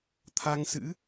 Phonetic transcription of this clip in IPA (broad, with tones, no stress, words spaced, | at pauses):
t̪ʰa˧ŋsɨ̰˧˥